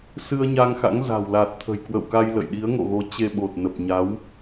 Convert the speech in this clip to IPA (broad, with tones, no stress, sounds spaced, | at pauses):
s ɨ˧ ə̯ ɲ a˧ ŋ x a̰˧˥ ŋ z a̤˨˩ w l a˨˩ t̚ t̪ʰ ə̤˨˩ j k w ə̰˧˨ w k a˧ j l ə̰˧˨ j ɗ i˨˦ ə̯ ŋ o̰˧˨ ɣ o˨˦ t͡ɕ e˧ ɓ o˨˩ t̚ n ə˨˩ p̚ ɲ a˨˦ w